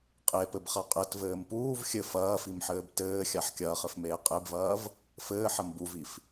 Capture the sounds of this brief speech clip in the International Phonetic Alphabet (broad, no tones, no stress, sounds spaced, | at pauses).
qʼ e p ɘ b χ a qʼ ɘ t v ɘː m p uː v xʲ ɘ f ɐː f i m ħ ɘː b t ɘː xʲ a ħ kʲ ɐː χ ɘ f m eː qʼ e b v ɐː v | f ɘː ħ ɐ m b u v i f